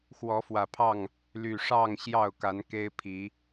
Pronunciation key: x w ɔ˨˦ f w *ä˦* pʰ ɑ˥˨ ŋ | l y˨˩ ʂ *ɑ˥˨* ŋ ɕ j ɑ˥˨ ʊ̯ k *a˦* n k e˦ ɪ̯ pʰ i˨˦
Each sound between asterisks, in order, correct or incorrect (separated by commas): incorrect, correct, incorrect